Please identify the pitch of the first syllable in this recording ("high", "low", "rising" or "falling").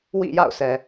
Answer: falling